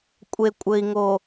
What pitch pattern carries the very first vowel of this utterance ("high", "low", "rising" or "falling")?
low